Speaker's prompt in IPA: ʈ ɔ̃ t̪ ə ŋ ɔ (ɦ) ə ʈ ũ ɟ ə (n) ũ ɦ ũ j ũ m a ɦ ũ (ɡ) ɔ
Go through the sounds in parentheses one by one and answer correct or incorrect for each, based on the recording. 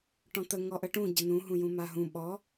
incorrect: ʔ, correct, incorrect: ɓ

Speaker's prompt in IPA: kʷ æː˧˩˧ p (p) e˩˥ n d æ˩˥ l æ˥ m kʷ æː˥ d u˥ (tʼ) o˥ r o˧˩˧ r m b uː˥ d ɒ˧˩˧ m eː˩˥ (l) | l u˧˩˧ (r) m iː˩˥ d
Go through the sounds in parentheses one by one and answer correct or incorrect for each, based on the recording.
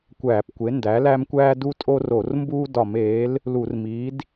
incorrect: kʷ, correct, correct, correct

